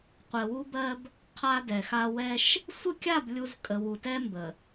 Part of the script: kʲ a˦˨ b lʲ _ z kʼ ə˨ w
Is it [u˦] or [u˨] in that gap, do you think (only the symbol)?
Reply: u˦